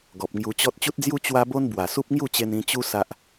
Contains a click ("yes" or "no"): no